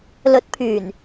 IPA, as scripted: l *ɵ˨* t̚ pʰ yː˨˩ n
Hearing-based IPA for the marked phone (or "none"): ɵ˨˥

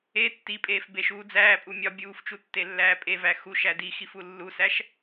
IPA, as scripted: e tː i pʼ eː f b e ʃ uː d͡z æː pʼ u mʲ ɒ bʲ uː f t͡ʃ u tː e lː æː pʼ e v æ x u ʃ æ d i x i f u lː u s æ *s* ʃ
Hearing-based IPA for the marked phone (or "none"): none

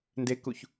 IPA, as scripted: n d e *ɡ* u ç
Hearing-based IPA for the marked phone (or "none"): k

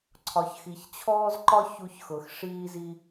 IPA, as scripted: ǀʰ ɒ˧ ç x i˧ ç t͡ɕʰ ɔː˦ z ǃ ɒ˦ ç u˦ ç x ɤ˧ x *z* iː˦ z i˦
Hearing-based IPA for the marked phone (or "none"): ʂ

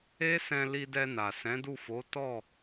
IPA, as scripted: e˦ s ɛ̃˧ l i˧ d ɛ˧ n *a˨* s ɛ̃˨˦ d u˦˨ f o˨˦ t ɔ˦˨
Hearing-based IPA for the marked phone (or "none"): a˨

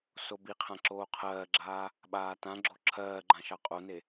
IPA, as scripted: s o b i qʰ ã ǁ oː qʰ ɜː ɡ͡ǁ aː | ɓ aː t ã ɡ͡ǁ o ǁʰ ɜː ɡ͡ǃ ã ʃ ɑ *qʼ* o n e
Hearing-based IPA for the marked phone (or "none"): qʼ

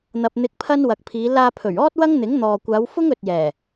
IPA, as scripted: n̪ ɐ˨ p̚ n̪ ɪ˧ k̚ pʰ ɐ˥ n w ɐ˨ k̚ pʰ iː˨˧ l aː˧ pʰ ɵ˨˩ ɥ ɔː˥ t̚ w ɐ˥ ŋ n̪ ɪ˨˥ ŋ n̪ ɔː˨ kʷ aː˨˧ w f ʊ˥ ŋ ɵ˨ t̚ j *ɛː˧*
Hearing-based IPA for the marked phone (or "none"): ɛː˨˩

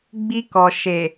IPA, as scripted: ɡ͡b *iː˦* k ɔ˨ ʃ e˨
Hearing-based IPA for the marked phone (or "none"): i˦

